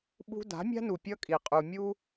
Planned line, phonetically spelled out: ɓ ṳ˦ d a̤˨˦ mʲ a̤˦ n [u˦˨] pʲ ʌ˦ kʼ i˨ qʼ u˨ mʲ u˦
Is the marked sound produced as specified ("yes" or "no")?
no